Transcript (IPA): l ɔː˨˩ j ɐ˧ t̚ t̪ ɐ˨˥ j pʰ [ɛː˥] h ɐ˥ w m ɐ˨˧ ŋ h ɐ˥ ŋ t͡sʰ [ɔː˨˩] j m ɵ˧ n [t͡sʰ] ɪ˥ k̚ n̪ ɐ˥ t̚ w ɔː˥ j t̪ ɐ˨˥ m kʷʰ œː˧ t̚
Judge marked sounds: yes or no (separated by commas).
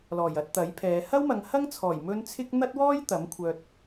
no, yes, yes